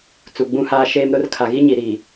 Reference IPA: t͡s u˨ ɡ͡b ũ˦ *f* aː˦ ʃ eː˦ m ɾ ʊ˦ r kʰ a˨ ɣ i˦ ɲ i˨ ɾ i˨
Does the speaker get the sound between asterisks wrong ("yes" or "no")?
yes